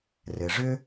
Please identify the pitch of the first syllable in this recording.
low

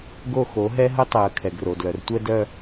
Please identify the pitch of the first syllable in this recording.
falling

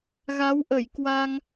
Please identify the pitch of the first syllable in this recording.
rising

